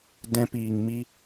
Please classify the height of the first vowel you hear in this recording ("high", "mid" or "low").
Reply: mid